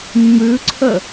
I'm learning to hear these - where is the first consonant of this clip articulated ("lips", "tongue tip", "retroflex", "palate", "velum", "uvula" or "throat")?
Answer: lips